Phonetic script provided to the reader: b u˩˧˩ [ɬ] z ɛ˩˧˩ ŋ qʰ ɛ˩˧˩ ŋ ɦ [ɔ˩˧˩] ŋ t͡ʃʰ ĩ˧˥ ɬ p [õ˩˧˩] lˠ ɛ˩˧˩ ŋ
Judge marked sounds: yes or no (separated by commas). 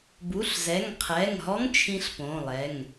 yes, no, yes